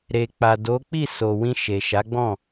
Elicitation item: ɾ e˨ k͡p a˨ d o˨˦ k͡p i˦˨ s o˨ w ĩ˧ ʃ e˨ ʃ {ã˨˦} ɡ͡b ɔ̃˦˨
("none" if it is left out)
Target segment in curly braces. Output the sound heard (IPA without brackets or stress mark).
a˨˦